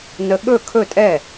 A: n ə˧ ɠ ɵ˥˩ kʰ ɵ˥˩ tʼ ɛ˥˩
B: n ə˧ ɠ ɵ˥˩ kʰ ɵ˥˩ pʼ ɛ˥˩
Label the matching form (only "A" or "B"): A